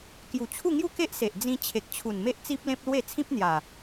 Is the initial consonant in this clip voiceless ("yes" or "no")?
yes